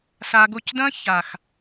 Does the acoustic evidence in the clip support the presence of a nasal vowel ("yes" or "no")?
yes